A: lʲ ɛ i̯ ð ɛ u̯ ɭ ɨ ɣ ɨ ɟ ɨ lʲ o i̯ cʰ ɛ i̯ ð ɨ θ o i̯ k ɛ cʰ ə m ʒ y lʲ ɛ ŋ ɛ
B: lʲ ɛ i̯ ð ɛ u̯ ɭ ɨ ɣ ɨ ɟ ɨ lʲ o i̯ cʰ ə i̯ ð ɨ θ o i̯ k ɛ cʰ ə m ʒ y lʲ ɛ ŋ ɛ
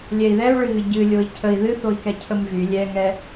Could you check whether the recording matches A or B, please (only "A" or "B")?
B